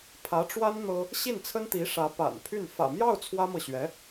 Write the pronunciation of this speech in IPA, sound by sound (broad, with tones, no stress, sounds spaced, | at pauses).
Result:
pʰ ä˧˥ ʈ͡ʂ w a˥ n n̪ ɤ˥ | ɕ i˥˩ n t͡sʰ ə˥ n t̪ i˧˥ ʂ ä˧˥ p a̰˨˩ n pʰ y˥˩ n f ä̰˨˩ m j ɑ˥˩ ʊ̯ t͡sʰ w ä˥ m ɤ˨ ɕ ɥ ɛ˧˥